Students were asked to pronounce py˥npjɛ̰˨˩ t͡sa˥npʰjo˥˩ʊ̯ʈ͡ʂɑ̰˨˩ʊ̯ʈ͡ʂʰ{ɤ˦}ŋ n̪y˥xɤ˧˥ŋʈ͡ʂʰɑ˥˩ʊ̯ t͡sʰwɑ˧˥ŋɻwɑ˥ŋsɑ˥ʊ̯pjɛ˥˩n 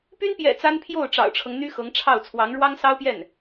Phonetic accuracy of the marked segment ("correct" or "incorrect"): correct